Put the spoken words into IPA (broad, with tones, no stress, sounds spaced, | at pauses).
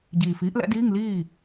ɟ iː˨˩ f iː˨˥ ʔ l ɛ̰˨˥ d iː˧˥˧ ŋ l iː˥˩